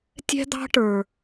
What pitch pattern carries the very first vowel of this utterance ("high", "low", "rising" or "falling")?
high